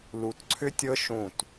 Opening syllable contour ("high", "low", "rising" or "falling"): low